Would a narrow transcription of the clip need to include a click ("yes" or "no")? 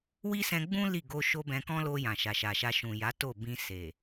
no